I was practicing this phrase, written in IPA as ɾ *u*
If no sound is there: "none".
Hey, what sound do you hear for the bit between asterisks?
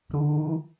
u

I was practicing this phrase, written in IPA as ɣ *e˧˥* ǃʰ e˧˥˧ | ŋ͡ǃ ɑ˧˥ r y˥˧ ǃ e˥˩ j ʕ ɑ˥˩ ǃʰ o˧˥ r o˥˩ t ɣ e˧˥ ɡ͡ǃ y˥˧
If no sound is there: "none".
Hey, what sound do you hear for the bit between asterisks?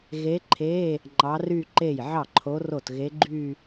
e˧˥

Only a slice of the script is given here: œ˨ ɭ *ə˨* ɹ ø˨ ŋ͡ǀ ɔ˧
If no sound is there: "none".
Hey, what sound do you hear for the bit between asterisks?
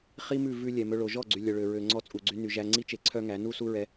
ø˨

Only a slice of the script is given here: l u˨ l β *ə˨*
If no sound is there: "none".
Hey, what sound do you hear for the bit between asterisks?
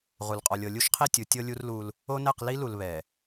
ɛ˨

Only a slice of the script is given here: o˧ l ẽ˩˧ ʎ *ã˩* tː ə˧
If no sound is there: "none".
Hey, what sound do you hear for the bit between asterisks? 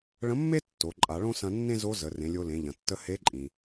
ɐ̃˩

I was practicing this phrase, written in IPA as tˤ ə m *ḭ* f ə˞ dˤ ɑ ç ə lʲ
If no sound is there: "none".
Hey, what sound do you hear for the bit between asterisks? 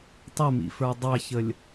ḭ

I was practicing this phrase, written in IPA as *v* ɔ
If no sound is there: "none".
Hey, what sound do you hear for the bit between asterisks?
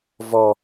v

